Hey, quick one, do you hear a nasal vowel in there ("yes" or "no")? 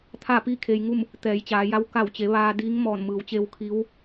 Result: no